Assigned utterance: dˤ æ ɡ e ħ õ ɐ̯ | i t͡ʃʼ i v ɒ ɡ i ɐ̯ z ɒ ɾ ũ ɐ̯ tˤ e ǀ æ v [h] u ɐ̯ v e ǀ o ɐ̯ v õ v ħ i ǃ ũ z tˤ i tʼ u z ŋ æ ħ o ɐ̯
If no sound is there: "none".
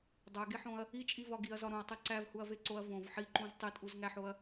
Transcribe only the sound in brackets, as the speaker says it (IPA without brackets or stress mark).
h